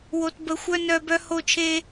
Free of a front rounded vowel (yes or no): no